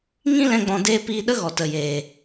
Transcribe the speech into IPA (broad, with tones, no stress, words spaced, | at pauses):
ŋĩ˦lɛ̃˧ ɡ͡bɔ̃˧deː˦ piː˧ɗə˦ɣɔ˨ tə˨jeː˨